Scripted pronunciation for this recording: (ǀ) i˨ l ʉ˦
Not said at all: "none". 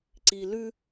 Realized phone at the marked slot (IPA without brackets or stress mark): ǀ